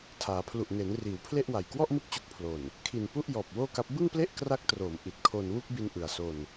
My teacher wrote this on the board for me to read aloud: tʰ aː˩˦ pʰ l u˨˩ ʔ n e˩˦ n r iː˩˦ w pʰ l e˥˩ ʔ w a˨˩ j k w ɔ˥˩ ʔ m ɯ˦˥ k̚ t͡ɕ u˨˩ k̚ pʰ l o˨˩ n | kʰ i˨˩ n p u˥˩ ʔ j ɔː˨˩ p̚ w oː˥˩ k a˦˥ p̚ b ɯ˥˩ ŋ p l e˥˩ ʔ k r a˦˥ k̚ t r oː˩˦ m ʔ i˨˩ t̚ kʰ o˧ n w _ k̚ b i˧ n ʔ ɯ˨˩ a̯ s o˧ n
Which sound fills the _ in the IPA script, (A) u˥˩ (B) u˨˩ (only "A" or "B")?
A